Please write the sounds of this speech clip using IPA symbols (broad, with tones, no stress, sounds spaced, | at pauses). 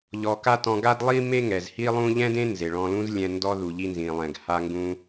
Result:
ʎ ɔ˧ k a˥ t ɔ̃˧ ɡ a˥ d lˠ i˥ m e˥ ŋ ɛ˩ z h i˥ lˠ ũ˥ ʎ ɛ̃˥ d ẽ˥ n z e˩ ɭ ɔ̃˧ l ũ˥ z lʲ ɛ̃˧ n d ɔ˧ ð u˩ ʎ i˧ n z ĩ˩ lˠ ɛ̃˩ ɡ h a˧ ŋ ɡ ũ˧